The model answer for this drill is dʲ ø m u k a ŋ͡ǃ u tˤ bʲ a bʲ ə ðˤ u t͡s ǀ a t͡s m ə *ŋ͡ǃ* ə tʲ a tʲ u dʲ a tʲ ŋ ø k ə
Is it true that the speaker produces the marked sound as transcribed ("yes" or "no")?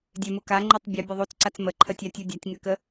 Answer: no